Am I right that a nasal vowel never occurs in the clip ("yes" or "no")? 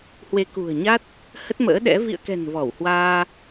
yes